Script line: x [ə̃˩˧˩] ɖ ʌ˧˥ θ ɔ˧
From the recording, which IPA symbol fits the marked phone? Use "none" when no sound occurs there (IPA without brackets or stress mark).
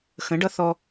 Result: ə̃˩˥